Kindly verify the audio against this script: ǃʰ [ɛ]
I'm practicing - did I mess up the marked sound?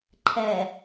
no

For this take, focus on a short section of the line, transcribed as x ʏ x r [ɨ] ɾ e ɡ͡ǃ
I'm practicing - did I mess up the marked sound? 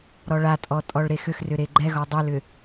yes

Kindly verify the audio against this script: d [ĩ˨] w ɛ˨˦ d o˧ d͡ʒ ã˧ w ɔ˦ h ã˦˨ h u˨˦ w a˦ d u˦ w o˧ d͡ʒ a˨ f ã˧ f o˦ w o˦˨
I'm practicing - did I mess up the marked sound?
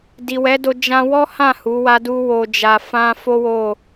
yes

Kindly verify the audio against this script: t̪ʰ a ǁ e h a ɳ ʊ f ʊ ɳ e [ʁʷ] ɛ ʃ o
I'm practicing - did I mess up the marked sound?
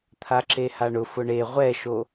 no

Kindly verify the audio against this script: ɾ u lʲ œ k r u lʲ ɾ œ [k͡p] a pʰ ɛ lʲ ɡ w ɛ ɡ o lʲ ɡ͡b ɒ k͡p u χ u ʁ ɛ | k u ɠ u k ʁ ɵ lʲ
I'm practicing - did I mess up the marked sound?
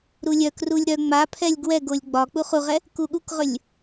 yes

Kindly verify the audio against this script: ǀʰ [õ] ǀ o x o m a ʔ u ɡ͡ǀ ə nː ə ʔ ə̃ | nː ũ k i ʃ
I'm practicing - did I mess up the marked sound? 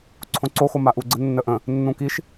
no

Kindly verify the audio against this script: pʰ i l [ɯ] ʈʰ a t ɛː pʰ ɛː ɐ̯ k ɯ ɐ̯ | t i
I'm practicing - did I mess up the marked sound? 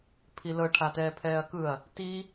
yes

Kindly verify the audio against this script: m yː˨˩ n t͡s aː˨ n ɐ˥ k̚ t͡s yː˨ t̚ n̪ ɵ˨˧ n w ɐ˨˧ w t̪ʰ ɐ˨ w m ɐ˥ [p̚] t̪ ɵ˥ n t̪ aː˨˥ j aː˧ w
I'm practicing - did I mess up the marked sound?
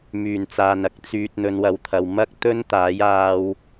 yes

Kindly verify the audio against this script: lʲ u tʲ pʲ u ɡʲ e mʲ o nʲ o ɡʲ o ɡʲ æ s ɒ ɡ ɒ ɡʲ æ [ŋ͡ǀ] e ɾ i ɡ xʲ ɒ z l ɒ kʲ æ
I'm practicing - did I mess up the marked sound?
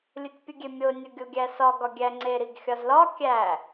no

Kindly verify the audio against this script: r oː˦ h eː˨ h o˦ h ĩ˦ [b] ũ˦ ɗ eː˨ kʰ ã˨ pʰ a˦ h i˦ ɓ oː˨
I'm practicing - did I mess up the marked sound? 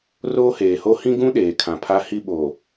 yes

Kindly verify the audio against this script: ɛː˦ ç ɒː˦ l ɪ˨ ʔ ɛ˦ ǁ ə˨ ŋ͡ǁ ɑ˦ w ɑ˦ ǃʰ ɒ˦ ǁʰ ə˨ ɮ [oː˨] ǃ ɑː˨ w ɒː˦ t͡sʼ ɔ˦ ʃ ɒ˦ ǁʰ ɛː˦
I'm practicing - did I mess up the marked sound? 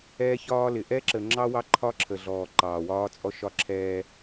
yes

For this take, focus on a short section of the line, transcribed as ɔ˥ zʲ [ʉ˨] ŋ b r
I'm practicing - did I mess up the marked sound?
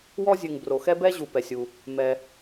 no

